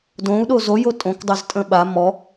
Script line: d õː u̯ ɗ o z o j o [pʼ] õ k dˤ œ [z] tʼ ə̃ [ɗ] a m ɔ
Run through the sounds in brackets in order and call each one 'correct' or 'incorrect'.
incorrect: tʼ, correct, incorrect: ɓ

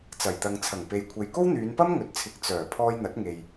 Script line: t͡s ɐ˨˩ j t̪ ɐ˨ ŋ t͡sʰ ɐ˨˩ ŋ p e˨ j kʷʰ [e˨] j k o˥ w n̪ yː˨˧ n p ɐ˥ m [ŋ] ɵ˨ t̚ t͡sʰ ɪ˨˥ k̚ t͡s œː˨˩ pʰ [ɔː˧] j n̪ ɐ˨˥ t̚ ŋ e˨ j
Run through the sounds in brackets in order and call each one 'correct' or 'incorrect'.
correct, correct, correct

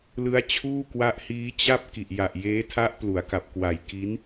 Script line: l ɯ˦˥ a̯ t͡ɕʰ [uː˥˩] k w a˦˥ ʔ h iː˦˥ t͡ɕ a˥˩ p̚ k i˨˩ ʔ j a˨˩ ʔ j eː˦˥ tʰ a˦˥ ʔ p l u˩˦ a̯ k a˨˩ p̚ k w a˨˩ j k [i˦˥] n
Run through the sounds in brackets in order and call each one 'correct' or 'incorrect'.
correct, correct

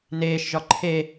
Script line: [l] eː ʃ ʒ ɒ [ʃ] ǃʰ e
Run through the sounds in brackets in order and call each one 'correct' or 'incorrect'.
incorrect: n, incorrect: none

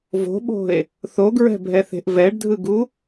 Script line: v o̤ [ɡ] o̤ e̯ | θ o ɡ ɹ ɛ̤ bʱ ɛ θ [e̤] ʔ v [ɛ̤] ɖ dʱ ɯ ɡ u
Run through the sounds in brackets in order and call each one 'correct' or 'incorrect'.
incorrect: ɓ, correct, incorrect: ɛ

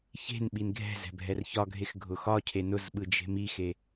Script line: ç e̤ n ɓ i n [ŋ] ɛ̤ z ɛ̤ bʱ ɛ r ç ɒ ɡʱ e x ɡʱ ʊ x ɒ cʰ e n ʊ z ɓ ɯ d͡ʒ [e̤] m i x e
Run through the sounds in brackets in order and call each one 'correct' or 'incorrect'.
incorrect: ɡʱ, correct

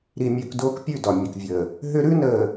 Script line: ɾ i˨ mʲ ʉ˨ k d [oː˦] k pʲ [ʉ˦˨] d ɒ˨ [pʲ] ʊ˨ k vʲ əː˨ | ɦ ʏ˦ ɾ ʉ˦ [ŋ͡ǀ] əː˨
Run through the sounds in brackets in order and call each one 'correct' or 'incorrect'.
correct, correct, incorrect: mʲ, incorrect: n

